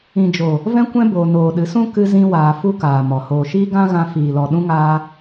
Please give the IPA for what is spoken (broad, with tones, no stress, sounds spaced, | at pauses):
ĩ˨ d͡ʒ o˨ | v ɛ̃˦ kʷ ɛ̃˦ b oː˨ n oː˨ ɗ ɨ˨˦ s ũ˦ k ɨ˧ z ĩ˧ w aː˧ f u˦ k aː˨ m ɔ˨ h oː˨ ʃ iː˦ ɡ ã˦ ɣ ã˧ f iː˨ l ɔ˨ ɗ ũ˦ ŋ aː˦